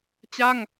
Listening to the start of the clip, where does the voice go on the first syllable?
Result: falling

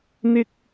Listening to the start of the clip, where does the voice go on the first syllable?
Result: high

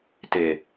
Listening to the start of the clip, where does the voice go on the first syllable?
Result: low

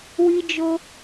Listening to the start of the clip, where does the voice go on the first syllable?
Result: high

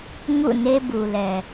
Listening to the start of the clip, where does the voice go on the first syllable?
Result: falling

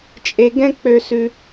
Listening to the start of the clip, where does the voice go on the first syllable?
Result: low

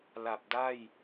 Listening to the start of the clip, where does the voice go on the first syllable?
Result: low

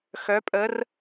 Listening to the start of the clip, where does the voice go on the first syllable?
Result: rising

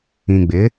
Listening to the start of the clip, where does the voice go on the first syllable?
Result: low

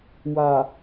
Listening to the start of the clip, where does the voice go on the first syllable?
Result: low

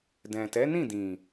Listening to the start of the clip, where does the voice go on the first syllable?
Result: low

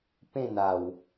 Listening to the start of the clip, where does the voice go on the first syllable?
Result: falling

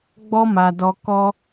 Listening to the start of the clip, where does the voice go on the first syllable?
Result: high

